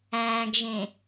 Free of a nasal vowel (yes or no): no